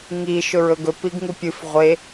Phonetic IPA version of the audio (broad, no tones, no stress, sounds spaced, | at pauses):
ŋ i ʃ ɵ ɹ ɵ ɡ ɵ p i ɡ ŋ u pʲ ɨ f ʁʷ e